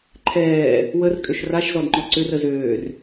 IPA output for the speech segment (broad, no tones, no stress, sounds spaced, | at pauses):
ǃʰ ɛː | w ə r kʼ ø ʃ r a ʃ z ɔ d ŋ͡ǃ ɔ ǀ ʏ r ə z øː r